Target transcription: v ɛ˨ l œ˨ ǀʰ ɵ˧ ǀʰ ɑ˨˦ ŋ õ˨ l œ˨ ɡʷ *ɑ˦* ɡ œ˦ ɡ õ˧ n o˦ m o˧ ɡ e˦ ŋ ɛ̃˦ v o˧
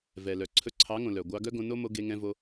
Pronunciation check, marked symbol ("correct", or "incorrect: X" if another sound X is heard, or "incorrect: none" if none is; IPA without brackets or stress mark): incorrect: ɑ˧